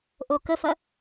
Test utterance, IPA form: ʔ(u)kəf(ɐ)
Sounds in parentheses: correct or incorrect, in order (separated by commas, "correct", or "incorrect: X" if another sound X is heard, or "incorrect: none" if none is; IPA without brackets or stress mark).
incorrect: o, correct